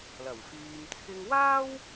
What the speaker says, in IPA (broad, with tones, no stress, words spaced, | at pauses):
lɐ˨˩wfyː˧m t͡sʰɪ˧ŋwaː˥w